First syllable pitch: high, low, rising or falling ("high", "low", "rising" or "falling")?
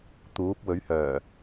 rising